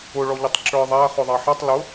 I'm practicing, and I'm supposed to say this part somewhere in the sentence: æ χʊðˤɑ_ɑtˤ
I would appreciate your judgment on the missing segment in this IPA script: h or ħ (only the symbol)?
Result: ħ